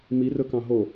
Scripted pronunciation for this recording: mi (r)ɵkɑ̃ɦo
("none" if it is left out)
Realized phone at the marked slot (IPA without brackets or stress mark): r